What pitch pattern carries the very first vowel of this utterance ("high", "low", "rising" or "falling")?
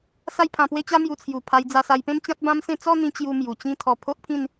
falling